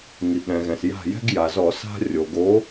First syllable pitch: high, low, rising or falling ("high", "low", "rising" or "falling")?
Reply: low